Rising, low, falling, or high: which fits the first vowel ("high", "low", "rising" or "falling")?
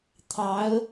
rising